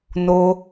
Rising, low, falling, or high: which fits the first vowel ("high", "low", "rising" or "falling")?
high